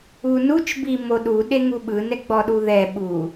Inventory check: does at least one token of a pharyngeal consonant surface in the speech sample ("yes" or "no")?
no